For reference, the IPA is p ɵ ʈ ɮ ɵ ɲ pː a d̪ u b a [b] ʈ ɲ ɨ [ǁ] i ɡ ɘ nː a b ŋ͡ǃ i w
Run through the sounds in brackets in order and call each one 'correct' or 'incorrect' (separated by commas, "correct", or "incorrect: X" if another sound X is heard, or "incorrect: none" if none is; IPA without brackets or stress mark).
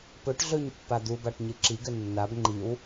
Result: incorrect: none, correct